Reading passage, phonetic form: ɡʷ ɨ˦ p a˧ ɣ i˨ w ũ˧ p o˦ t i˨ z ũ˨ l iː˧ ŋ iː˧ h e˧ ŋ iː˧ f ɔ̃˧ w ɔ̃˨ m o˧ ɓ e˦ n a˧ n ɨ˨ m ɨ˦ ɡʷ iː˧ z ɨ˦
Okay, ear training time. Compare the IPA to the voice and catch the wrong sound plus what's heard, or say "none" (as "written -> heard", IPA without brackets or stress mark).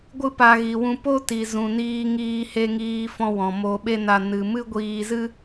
l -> n